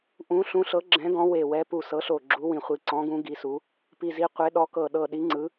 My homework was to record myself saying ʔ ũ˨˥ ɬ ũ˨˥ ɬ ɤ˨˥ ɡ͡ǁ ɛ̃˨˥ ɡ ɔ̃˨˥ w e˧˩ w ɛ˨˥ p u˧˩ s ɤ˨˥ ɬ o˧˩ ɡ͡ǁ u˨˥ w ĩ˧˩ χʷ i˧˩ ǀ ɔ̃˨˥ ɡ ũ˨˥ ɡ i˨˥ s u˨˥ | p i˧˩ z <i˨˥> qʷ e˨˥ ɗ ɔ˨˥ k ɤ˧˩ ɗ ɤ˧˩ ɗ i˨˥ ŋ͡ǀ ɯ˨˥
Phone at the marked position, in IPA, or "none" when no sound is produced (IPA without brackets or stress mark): i˨˥